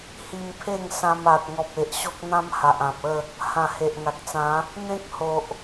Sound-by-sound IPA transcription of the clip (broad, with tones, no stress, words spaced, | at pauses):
hi˧mpʰe˥˧ŋsã˧m a˨t̚ŋɔ˨p̚e˨ʔ ɕo˦k̚n̪ã˦mha˨ʔ ã˨p̚ə˥˧ | hã˨˩he˨ʔŋa˨k̚t͡sã˨˦ | n̪ẽ˦k̚ho˨ʔ